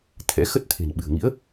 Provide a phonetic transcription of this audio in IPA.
t̪ʰɛ̰˧˥ xə˦˥t̚t̪ʰe̤˨˩nɓɨ̤˨˩ə̯ŋḭ˧˥ə̯

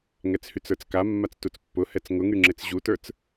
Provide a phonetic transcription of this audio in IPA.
ŋɛt͡shyt͡sə˞t͡ska mːat͡stut͡spːʊhɛt͡s ŋʊŋyŋ͡ǁet͡s ʑutə˞t͡s

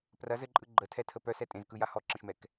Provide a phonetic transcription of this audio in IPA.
prɐz ɘǃʼɯ ɡ͡ǃətʰɛtʰə pœsɛ tʼẽzkɯja hɔǁə̃ʃmɛk

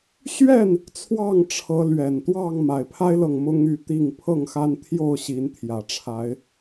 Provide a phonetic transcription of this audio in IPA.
ɕɥɛ˥˨n | t͡sʰwɑ˥˨ŋʈ͡ʂʰɤ˨˦lɥɛ˨˩n t̪wɑ˥˨ŋ ma˨˩ɪ̯pʰa˦ɪ̯lɤ˨ŋ mʊ˦ŋy˥˨t̪i˥˨ŋ pʰɤ˥˨ŋxa˦nt̪ʰjo˥˨ʊ̯ ɕi˨˦nt̪ʰjä˨˩ʈ͡ʂʰa˨˦ɪ̯

